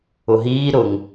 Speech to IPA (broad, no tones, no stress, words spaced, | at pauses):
ʊɦiː ɾʊŋ